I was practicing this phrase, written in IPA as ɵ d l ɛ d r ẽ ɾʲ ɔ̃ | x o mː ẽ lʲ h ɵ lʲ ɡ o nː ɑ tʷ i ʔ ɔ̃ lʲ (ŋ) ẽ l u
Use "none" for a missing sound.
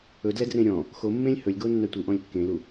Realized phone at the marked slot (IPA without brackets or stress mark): kː